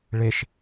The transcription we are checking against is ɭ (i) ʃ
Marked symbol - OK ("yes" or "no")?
no